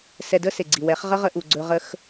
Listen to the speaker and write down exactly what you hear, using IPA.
s ɛ˧ d ə˦ s e˨ ɡ͡ǀ i˨ w ɛ˨˦ χ ʁ ə˦ ʁ ə˧ ʔ u˨ ɡ͡ǀ ɵ˧ ʁ ə˦ x

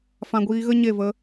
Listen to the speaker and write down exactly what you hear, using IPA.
f ã˧ ɡʷ iː˧ ɣ ə˦ ɲ e˦˨ v ə˧

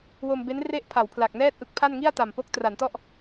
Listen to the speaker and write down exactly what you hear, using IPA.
w o˧ m b e˦˥ n r e˥˩ ʔ pʰ a˩˦ w pʰ l a˨˩ k̚ n ɛː˥˩ t̚ ʔ ɯ˦˥ k̚ pʰ a˥˩ n ŋ i˥˩ a̯ t a˨˩ m p o˦˥ k̚ t r a˩˦ n t ɔ˥˩ ʔ

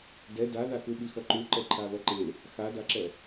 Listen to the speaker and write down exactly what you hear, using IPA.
d ɛ d a ð a k u ɓ i x ʌ ǃ u ǃ ɛ ǃʰ a β ʌ ǃ e | x a d a ǁ ɛ

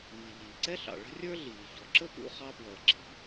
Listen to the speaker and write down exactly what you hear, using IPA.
m i˩ ʎ iː˩ ǀ ɛ˥ ɬ ɑ̰˩ ɭ ə̤˥ rʲ ə˞˥ ɮ iː˩ ç ɔ˩ ǁ ə˥ p ṵ˧ χ ɑ˧ p w ʌː˩ ǁ i̤˧

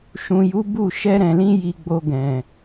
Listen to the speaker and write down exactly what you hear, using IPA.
ʃ ũ˨ j u˨˦ b u˦˨ ʃ ɛ˧ ɾ ɛ̃˨ l ĩ˧ j i˧ ɡ͡b o˧ ɡ ɛ̃˨

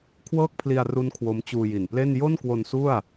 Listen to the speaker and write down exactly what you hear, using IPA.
kʰ w ɤː˥˩ k̚ pʰ l i˧ a̯ r u˦˥ n kʰ w o˦˥ m t͡ɕ uː˧ j i˨˩ n p l e˥˩ n j o˥˩ n k w o˧ n s u˥˩ a̯

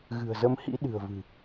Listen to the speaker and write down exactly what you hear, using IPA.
ɣ ɨ̤˨˩ ə̯ z ə˧ m h ḭ˧˥ ɗ ɨ̤˨˩ ə̯ v ɨ̤˨˩

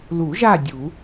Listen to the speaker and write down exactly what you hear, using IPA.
l u˨˩˦ ʒ a˦˨ dʲ u˨˩˦

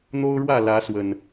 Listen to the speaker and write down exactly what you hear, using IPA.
n̪ o˦ ʊ̯ ɻ w ä˥˨ l ä˨˦ s w ə˨˩ n

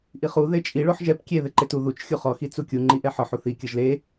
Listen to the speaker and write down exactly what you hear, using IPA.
ʔ i χ u ð e t͡ʃʼ i ɭ o ħ ʒ ɛ p kʲ e ð e ǃ e t u ð u t͡ʃ xʲ u χ ɔ x i t͡s u kʲ u ŋ͡ǃ i ʔ ɛ ħ ɔ ħ u θ i kʲ ɤ ʒ l e

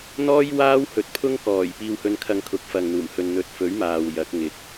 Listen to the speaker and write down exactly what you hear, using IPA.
n̪ ɔː˥ j w aː˥ w h ɵ˨ t̚ pʰ ʊ˥ ŋ k ɔː˨˩ j p iː˧ w h ɵ˧ n kʰ ɐ˧ ŋ kʰ ʊ˨ k̚ f ɐ˨ ŋ n̪ uː˨˩ m h ɵ˨ n n̪ ɵ˨ t̚ f ɵ˨˥ ɥ m aː˨ w j ɐ˨˥ k̚ ŋ ɪ˨ k̚

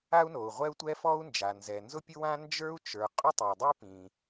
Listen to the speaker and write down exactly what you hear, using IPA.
a˥ u̯ n o˩ u̯ ʁʷ ɛ˥ u̯ tʷ ɛ˥ f ɔ˥ u̯ n d͡ʒ a˩ n z ɛ˩ n z ʊ˥ pʲ ʊ˥ w ã˥ n d͡ʒ ə˞˥ u̯ t͡ʃ ə˞˩ qʼ ʊ˥ tˤ ɛ˩ dˤ ʊ˥ i̯ p ĩ˩

